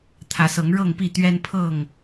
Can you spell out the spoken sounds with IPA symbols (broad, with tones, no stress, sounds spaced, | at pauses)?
t̪ʰ ä˨˦ s ɤ˨˦ ŋ ɻ ɤ˥˨ ŋ p i˥˨ t̪ ɥ ɛ˦ n pʰ ɤ˥˨ ŋ